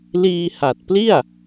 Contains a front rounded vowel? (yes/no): no